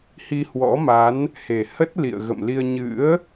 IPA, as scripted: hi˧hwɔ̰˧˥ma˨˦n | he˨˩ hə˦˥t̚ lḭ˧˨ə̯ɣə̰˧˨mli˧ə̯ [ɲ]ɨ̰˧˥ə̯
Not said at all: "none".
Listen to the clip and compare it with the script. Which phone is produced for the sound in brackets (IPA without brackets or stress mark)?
ɲ